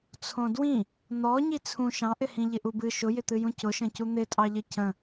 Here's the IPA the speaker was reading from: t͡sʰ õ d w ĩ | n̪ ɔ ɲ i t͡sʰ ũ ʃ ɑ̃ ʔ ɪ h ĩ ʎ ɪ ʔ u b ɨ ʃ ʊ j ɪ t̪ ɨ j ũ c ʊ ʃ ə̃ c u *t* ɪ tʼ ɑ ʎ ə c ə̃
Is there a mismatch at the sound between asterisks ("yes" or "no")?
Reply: yes